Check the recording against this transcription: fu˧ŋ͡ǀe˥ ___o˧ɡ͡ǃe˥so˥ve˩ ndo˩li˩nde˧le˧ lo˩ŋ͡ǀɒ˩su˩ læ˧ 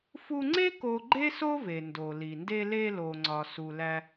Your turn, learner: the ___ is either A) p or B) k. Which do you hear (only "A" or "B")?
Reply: B